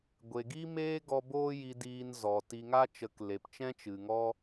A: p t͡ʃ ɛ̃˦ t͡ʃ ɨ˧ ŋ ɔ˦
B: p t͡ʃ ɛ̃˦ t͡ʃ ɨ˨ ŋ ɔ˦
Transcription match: B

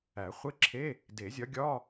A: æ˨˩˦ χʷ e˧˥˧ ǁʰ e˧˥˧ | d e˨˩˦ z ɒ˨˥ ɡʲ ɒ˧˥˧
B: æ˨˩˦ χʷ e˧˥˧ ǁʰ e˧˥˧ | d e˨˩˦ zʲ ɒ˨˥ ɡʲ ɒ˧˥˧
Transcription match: B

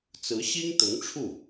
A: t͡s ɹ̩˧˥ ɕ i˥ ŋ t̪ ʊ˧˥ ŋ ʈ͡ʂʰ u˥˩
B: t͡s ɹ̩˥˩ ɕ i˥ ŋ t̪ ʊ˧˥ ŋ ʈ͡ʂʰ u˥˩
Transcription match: A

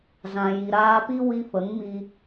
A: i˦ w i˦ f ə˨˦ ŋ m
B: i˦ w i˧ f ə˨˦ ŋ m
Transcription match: B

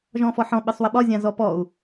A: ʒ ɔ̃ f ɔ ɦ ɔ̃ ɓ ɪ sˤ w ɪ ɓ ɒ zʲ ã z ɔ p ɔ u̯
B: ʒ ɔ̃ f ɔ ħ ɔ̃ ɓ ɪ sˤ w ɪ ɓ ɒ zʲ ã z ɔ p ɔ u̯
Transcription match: B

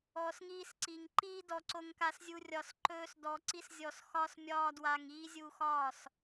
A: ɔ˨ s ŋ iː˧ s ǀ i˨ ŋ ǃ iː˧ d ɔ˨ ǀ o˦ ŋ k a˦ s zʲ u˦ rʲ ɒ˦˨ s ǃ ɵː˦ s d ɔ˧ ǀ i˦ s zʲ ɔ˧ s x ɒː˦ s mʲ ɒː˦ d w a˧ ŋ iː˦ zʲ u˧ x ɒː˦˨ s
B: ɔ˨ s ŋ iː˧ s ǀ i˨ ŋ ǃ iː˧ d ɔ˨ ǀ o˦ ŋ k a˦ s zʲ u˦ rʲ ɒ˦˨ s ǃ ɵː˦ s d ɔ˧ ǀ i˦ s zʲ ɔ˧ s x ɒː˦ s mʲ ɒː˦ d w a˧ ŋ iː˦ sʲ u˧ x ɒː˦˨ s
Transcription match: A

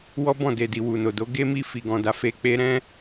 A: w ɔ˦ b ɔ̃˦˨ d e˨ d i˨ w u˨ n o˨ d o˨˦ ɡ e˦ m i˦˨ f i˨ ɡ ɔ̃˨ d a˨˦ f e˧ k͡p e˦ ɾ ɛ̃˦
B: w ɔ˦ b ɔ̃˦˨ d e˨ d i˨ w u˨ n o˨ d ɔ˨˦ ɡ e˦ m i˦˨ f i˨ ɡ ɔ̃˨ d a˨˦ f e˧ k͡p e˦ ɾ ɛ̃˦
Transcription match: A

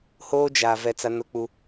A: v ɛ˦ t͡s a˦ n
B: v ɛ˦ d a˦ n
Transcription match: A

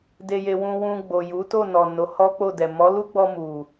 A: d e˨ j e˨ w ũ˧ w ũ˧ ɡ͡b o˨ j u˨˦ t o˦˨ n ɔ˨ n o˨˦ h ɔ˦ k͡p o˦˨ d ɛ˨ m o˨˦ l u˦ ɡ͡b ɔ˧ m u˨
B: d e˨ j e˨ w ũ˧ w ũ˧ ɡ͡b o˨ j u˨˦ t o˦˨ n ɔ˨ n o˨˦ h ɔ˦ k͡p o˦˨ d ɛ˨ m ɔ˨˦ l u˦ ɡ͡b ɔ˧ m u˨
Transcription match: B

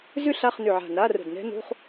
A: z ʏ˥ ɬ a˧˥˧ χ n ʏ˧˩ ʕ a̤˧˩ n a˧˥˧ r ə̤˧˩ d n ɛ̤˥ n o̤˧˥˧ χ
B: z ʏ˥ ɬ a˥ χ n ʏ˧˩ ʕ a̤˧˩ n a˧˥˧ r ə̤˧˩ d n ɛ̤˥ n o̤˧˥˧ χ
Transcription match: A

